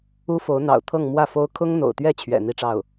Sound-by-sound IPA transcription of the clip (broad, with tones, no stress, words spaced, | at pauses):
u˥fo˧˥ʊ̯ n̪ɑ̰˨˩ʊ̯ t̪ʰɤ˥˧ŋ mwä˥˩fo˥ʊ̯ kʰʊ˥ŋn̪o̰˨˩ʊ̯t̪ɥɛ˥˩t͡ɕʰɥɛ̰˨˩ n̪i˥˧ʈ͡ʂɑ˥˩ʊ̯